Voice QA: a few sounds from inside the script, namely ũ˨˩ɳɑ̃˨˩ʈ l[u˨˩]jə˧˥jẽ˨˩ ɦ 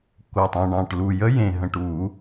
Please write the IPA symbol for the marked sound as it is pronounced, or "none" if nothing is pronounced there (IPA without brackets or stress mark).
u˨˩